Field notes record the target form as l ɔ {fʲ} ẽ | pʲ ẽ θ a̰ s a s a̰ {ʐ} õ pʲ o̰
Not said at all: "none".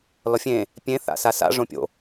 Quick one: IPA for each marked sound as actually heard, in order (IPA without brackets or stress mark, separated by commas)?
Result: fʲ, ʐ